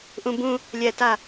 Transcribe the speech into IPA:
ʔ ũ b ũ | lʲ ɛ t a

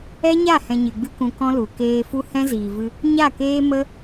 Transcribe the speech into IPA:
ɛ˦ ɲ a˦˨ h ɛ̃˧ ɲ ɨ˨ ɡ͡b ɨ˦ k ũ˧ k ɔ̃˦ l u˨ k eː˧ f u˦ h ɛ̃˦ z iː˨ v ɨ˧ | ɲ a˦˨ k eː˦ m ə˦

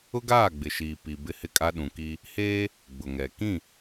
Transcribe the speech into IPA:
ʊ˦ ɡ aː˦˨ ɡ͡b ɪ˨ ʃ iː˨ p i˨ b ɪ˦ h ɪ˦ kʼ a˦ ɗ ũ˨ k i˦ | h eː˦ | ɡ͡b ʊ˨ ŋ ɛ˨ k ĩ˦˨

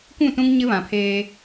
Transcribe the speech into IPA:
kʷ ũ˦˨ t ũ˦ ŋ ɲ ɪ˦ β ã˨ pʰ eː˦

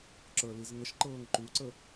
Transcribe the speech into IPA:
ǁ ə˞ l i z ŋ ə ʃ ǃ ɤː ŋ ǃ u ǀ ə

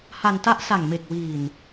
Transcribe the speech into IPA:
h a˧ n t a˦˥ ʔ s a˨˩ ŋ m e˨˩ k̚ w iː˨˩ n

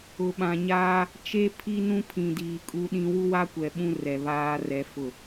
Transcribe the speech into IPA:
ʊ˨ ɓ ã˨ ɲ aː˦ | t͡ʃ e˦ pʰ i˦ n ũ˦ pʰ ĩ˨ d iː˨ kʼ u˦ ɗ ĩ˦ w u˦ w a˦ kʷ ɛ˨ ɓ ũ˦ r ɛ˨ β aː˦ r ɛ˦ f ʊ˦˨

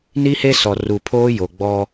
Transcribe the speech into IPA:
n i˦ h e˦ s ɔ˨ r u˨ pʰ oː˦ j o˨ ɡ͡b ɔ˦

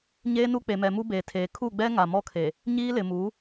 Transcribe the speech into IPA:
ɲ eː˦ n u˦ k͡p e˨ m ɛ˨ m u˦ b eː˨ tʰ eː˨ kʰ u˦˨ ɡ͡b ɛ˦ ŋ a˨ m ɔ˦ kʰ e˨ | ɲ iː˦ l ɪ˨ m uː˨˦

